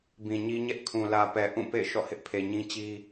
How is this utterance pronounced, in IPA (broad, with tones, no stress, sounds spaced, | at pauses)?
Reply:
b ĩ˨ ɲ i˦ ɲ ɛ˦ ʔ kʰ ũ˨ l ä˨ p ɛ˨ ʔ ũ˦˨ p ḛ˦˨ ɪ̯ ʃ ɔ̰˦˨ h ɪ˦ ʔ pʰ e˨ ɲ ĩ˦ t͡ɕ i˦